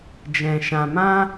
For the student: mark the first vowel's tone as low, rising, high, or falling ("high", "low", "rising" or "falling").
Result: low